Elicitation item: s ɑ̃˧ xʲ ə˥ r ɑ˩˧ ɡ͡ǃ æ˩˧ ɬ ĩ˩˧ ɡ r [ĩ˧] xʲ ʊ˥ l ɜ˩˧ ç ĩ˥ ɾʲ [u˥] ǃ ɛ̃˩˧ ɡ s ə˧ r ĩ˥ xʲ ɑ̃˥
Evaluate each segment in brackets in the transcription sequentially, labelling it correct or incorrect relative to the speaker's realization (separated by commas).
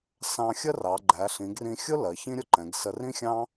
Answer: correct, incorrect